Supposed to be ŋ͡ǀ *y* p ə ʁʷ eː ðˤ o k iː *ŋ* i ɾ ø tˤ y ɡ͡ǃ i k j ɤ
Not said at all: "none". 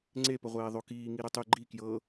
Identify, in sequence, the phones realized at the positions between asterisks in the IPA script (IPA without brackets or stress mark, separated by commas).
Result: e, ŋ